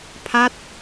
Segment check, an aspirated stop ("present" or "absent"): present